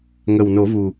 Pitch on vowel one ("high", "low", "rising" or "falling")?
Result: low